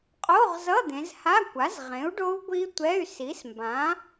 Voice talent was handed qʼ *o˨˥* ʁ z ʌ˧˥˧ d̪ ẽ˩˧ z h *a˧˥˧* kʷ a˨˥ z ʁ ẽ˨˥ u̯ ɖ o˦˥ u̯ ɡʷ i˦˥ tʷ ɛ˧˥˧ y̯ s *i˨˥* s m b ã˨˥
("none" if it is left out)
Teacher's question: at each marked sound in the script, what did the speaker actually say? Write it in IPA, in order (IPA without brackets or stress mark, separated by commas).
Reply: o˧˥˧, a˧˥˧, i˨˥